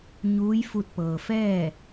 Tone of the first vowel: rising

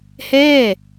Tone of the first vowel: falling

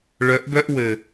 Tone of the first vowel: rising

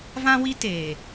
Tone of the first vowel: high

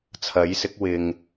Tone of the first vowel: rising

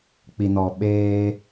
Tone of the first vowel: low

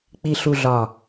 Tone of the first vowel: low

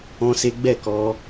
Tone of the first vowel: high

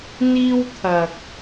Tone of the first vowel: high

